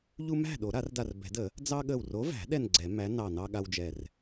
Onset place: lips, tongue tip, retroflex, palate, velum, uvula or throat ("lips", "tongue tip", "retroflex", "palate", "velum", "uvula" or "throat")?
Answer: palate